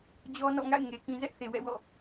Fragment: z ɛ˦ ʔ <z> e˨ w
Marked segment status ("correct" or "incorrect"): incorrect